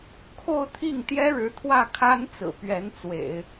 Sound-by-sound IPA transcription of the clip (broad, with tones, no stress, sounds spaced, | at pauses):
kʰ o˥˧ ʊ̯ t̪ʰ i˥˩ ŋ t̪ j ɛ˥ ɻ ɻ̩˧˥ t̪ʰ w ä˥˩ kʰ a˥ n t͡s ɹ̩˨˩ p ɥ ɛ˧˥ n t͡s w ḛ˨˩˦ ɪ̯